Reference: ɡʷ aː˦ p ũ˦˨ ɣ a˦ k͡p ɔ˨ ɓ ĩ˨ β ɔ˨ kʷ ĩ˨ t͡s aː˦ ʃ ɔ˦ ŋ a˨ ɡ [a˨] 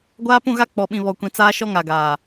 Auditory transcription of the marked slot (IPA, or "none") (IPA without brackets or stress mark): aː˨